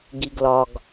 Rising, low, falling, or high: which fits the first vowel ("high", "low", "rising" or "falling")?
low